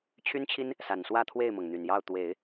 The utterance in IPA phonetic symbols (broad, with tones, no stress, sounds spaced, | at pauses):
t͡ɕʰ y˥ n t͡ɕʰ i˥ n | s a˨˩ n s w ä˥˧ t̪ʰ w e˥˩ ɪ̯ m ɤ˩ ŋ n̪ y˨˩ n j ɑ˥˩ ʊ̯ t̪ w e˨˩˦ ɪ̯